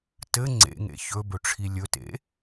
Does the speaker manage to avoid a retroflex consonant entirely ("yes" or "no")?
no